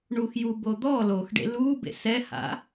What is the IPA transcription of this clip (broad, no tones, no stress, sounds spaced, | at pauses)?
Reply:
ɳ u x j u b o d̪ ɔ l o x ɖ ḛ l u b ḛ s ɛ h a̰